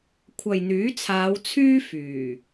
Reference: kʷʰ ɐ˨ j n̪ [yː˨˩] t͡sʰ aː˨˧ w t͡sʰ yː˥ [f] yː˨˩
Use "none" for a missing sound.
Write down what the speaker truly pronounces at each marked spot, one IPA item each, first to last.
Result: yː˨˥, f

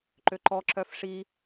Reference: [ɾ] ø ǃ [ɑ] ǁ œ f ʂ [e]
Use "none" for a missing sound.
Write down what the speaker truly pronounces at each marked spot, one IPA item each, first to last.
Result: ǃ, ɔ, i

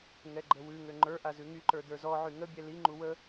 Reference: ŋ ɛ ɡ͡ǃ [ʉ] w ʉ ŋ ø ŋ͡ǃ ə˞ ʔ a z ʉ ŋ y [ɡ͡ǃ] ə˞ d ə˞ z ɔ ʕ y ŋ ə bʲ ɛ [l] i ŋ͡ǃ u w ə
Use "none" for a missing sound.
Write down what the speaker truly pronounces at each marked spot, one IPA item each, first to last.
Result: ə, ǃ, l

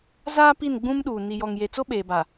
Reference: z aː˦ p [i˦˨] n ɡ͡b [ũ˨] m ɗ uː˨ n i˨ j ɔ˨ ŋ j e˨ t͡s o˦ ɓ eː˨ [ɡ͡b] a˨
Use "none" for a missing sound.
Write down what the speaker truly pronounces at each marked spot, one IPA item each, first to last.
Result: i˦˨, ũ˦, b

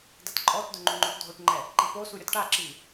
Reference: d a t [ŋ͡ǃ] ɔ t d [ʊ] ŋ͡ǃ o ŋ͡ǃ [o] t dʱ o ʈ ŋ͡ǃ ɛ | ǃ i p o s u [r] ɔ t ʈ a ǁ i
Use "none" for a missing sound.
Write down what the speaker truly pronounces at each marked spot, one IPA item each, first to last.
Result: ǃʼ, ʊ, o, ɾʲ

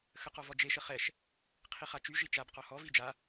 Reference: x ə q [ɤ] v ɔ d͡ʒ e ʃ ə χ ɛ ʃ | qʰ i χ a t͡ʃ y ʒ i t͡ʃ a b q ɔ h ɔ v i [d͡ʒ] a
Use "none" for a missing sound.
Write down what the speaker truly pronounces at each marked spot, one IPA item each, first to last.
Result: ɔ, d͡ʒ

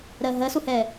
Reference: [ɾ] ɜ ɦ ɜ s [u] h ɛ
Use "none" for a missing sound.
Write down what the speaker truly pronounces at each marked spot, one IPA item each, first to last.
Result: ɾ, u

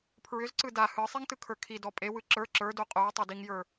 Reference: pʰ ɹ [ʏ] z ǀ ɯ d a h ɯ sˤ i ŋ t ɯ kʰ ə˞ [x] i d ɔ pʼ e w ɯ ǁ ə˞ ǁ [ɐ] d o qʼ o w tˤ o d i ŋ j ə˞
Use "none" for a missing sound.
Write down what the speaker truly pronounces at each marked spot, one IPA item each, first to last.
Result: ʏ, kʰ, ə˞

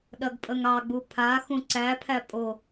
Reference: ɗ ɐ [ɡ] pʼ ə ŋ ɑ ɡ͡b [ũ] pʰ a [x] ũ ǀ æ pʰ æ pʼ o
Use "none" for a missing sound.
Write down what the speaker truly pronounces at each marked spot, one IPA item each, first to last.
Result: ɡ, u, x

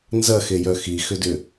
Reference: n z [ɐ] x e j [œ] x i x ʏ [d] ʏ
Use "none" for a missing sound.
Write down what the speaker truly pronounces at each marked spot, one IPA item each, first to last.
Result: ɐ, œ, d

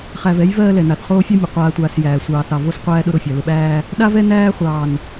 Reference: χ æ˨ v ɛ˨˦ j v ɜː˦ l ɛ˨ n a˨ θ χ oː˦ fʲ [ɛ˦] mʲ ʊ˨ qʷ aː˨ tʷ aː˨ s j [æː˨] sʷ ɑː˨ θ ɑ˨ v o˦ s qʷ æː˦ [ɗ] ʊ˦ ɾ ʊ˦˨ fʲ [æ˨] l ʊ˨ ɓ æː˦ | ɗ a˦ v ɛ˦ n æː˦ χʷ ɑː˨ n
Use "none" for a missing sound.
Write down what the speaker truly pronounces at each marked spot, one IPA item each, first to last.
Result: ɛ˦, æː˨, ɗ, a˨

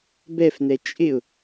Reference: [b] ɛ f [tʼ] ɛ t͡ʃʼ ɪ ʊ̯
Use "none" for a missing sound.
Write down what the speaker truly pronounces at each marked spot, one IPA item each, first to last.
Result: b, n

